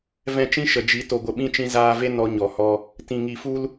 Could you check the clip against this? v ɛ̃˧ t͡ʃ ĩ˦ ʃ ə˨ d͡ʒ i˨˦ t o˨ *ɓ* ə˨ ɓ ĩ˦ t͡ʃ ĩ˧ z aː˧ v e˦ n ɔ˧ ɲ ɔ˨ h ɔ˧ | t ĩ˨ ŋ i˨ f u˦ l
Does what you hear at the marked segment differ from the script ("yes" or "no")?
yes